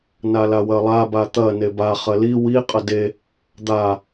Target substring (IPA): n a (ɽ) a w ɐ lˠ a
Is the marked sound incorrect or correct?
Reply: incorrect